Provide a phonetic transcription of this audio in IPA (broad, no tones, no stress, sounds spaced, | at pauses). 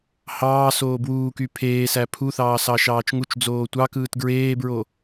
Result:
h ɑː s oː b w uː k y pʰ eː s æ pʰ u θ ɑː s ɑ ʃ ɑː t͡ʃ ŋ u t͡ʃ d͡z oː tʷ ɑ k ɯː t ɡ ɹ eː b ɹ o